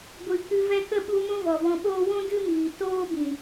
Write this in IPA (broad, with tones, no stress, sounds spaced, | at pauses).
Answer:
ɡʷ ɨ˨ k ɨ˧ v ɛ˧ k ə˦˨ ɓ u˧ m ũ˦ v ɔ˨ v ɔ̃˧ ɓ oː˦ w ũ˦ d ɨ˦ m iː˨ t oː˦ b ĩ˨